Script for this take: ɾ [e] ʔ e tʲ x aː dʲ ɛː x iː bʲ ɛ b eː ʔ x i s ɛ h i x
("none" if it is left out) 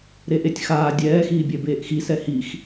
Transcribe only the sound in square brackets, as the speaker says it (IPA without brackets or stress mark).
e